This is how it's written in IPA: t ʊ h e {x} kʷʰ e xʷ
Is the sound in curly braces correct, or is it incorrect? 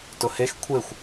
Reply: correct